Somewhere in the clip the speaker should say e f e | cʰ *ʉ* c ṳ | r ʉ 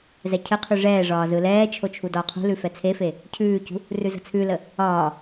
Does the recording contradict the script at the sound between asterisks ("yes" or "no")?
yes